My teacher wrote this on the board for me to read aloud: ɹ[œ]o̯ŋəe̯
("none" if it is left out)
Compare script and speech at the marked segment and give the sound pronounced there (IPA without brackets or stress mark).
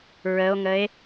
ə